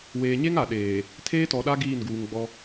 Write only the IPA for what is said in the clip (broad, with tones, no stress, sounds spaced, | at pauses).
w eː˨ ɲ e˦ ŋ a˨ ɗ eː˨ | tʰ eː˦ t ɔ˨ ɗ a˦ ɡ iː˦˨ n ɡ uː˨ ŋ ɡ͡b ɔ˦